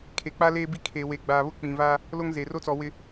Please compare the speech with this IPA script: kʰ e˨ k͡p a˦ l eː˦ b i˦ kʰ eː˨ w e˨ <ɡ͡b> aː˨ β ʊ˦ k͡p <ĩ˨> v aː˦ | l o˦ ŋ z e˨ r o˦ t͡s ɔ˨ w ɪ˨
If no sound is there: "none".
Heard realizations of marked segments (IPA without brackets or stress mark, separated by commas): ɡ͡b, ĩ˨